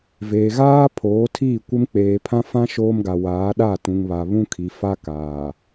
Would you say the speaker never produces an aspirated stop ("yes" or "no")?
no